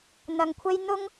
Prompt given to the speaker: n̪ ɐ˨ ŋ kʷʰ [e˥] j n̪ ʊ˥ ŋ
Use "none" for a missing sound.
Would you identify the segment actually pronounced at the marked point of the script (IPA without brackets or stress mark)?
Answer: e˥